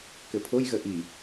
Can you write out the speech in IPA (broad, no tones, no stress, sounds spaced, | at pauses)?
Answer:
k ɘ pʰ o j ɣ ə ʔ i